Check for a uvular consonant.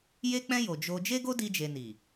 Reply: absent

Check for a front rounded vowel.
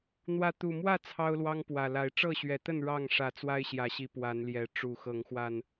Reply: absent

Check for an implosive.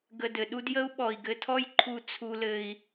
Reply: present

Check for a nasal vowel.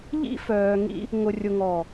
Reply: absent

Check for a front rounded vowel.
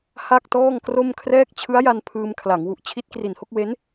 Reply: absent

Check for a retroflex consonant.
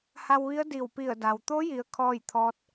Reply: absent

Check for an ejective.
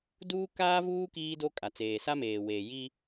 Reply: present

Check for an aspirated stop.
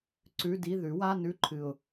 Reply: present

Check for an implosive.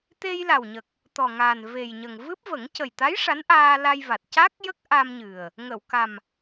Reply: absent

